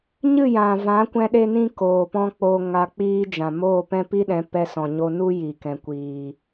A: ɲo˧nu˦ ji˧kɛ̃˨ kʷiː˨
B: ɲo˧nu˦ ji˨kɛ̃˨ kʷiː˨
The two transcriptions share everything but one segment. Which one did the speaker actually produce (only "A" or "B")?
B